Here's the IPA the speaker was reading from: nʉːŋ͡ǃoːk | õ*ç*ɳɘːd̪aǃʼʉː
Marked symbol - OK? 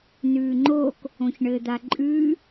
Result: yes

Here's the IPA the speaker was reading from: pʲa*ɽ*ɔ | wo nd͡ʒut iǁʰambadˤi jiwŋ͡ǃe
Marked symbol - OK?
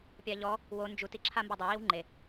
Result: no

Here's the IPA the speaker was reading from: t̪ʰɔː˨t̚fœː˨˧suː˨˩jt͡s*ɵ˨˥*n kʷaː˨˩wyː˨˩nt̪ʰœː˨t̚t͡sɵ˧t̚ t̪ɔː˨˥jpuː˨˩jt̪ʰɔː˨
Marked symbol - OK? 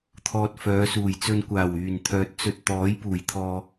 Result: no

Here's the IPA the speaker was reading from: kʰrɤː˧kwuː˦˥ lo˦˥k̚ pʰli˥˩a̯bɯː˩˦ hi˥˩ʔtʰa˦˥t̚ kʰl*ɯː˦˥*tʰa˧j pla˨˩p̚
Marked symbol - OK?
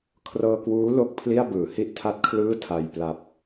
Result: no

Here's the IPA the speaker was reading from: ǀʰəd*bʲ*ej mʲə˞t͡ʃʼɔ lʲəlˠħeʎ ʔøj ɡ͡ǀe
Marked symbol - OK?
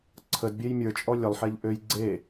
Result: yes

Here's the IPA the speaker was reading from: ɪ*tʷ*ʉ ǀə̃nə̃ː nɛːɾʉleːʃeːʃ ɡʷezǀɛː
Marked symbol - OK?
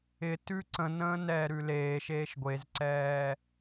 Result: no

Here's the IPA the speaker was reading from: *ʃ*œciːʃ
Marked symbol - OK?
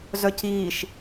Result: no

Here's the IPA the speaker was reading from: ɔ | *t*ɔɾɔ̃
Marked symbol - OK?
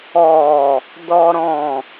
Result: no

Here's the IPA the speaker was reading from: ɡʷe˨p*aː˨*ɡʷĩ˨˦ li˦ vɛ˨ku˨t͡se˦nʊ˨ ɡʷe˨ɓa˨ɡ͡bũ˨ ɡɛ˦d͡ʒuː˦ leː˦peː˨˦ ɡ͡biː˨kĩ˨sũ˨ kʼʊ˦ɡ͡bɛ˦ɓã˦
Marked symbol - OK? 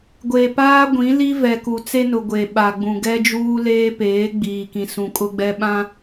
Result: no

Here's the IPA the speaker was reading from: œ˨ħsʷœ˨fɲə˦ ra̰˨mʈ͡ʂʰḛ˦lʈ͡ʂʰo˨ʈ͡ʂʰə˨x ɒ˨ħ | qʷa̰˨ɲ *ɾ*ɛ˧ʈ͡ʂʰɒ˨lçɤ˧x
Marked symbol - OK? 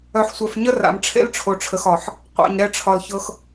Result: yes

